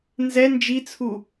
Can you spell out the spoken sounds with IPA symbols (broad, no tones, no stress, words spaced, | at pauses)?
nzɛ nd͡ʒit͡sʰu